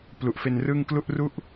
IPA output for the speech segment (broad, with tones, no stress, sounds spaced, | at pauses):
p l u˨˩ ʔ f e˧ n r ɯ˥˩ ŋ k l u˥˩ ʔ r u˥˩ ʔ